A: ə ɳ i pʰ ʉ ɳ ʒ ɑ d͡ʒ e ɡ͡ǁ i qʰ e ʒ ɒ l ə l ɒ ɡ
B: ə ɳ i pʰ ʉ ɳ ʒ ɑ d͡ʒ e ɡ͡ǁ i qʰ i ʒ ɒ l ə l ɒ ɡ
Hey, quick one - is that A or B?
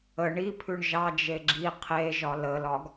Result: A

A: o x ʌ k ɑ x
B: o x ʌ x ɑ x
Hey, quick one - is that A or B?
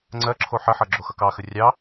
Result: A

